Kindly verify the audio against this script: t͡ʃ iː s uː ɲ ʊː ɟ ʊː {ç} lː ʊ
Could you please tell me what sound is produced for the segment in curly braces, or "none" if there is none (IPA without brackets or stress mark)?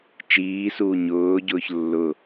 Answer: ç